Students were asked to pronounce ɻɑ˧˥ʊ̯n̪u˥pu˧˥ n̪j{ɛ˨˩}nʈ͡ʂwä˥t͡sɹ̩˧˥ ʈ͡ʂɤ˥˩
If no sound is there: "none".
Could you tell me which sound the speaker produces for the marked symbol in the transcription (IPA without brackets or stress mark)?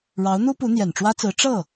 ɛ˨˩